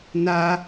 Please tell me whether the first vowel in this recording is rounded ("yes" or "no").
no